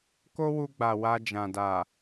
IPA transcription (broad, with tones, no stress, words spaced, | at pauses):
ko˦wu˧ɡ͡ba˨ wa˧d͡ʒã˨da˨